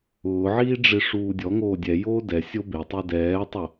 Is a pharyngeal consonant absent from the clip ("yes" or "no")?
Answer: no